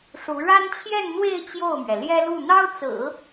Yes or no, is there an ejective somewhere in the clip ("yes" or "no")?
no